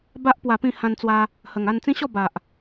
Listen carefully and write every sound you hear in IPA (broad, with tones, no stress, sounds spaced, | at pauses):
b a˦ ʔ p w a˧ p ĩ˥˧ h ã˧ n t͡s w a˧ | h ə˨˩ ŋ a˥˧ n t͡s ĩ˦ ɕ ɔ˥˧ b a˨ ʔ